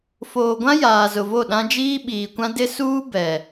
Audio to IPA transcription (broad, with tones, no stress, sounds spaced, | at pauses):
f oː˨ ɡʷ ã˦ j aː˨ z ʊ˨ v o˦˨ ɗ ã˦ d͡ʒ iː˦ ɓ iː˨ kʷ ã˦ d ɪ˦ s uː˦ b ɛ˨